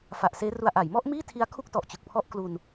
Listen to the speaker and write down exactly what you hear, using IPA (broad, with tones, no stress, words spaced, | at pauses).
fa˨˩ʔseː˦˥ru˧a̯ ʔa˩˦jmɔ˥˩ʔmiː˥˩ tʰi˦˥a̯kʰu˥˩k̚tɔ˨˩ʔ t͡ɕɯ˨˩k̚pʰɔ˥˩ʔ klu˧n